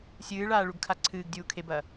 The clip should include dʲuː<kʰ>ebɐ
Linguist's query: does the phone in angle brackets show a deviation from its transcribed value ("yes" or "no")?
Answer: no